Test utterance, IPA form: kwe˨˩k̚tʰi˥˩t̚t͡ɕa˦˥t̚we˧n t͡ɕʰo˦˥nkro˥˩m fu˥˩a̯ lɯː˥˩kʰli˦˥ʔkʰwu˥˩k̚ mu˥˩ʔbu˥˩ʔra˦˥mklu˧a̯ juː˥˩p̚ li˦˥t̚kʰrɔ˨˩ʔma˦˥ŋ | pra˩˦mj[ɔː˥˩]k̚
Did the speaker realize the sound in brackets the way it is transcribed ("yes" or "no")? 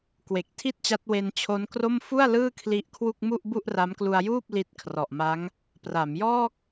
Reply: yes